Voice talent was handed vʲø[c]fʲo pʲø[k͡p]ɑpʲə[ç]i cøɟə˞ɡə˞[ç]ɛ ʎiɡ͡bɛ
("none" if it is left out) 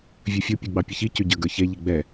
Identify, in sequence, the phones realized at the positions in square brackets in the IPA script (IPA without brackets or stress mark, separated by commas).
none, ɡ͡b, ç, ç